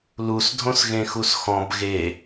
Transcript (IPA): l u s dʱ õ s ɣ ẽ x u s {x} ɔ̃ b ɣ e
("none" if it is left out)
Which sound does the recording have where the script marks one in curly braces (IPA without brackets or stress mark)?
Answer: x